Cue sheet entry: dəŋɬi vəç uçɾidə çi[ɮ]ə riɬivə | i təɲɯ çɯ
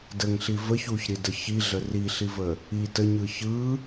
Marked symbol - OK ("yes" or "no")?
yes